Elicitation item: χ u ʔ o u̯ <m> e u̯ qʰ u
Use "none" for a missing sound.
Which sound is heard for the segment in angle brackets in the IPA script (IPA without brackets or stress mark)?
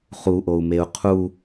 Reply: m